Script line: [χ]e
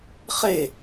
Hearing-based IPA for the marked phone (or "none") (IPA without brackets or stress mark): χ